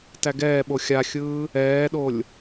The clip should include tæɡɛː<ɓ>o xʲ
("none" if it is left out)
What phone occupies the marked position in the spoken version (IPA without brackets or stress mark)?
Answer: ɓ